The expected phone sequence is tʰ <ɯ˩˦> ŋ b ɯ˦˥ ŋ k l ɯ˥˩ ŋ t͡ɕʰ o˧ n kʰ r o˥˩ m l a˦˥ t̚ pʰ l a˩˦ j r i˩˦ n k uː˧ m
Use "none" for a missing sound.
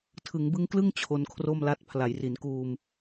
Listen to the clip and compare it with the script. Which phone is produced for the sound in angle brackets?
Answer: ɯ˩˦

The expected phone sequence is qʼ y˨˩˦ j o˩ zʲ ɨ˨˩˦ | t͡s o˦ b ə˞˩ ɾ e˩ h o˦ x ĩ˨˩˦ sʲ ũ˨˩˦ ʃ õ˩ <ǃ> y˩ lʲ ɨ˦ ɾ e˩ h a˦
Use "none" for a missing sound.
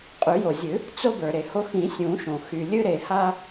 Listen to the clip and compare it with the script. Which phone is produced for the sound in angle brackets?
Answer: x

